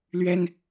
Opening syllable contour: high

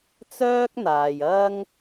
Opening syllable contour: high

